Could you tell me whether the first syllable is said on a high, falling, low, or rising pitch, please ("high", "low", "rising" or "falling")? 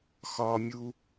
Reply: high